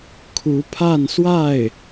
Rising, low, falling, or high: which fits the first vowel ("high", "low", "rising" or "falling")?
rising